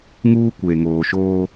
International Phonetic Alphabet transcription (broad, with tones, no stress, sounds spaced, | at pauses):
ŋ uː˦ kʷ e˨ ŋ oː˨ ʃ oː˦